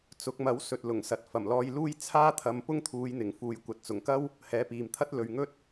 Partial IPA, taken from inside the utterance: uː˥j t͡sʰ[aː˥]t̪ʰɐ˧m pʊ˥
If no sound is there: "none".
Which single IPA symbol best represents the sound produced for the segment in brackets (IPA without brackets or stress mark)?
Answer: aː˥